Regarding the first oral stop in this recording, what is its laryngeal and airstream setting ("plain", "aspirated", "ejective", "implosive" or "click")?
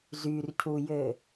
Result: aspirated